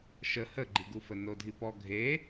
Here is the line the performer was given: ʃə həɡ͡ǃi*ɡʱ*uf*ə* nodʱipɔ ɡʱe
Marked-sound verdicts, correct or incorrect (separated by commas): incorrect, correct